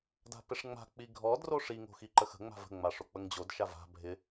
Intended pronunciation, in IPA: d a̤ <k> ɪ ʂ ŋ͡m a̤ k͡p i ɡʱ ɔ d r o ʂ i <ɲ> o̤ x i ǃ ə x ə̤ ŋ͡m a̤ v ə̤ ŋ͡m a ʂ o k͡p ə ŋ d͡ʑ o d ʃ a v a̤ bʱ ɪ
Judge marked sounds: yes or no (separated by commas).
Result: no, no